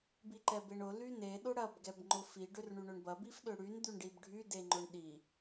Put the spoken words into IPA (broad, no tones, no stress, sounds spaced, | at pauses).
b i ǃ ɛ b e ɳ ʊ l y n e ɗ ʊ ɽ ɐ b ɡ ɛ b ŋ͡ǃ ʊ f i ɖ ø r ɳ y ɳ ø ɳ b ɐ b i f ɗ ø ɽ y n d̪ y ɳ ɖ i b ɖʱ y d e ŋ͡ǃ ʊ ɳ ɗ i